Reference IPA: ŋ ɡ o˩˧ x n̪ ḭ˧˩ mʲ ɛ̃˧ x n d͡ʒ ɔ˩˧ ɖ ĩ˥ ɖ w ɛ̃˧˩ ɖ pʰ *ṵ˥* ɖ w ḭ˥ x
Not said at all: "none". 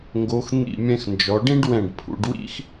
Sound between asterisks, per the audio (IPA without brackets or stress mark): ṵ˩˧